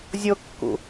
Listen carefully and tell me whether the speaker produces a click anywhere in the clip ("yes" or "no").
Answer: no